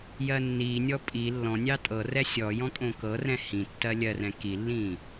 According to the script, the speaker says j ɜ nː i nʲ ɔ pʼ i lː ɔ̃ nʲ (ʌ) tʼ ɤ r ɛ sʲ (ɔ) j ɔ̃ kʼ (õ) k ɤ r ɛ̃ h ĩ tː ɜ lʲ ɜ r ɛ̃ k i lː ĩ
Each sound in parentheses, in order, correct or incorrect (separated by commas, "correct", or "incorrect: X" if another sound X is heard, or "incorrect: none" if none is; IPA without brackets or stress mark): incorrect: ɑ, correct, correct